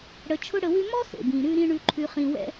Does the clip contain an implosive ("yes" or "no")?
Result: no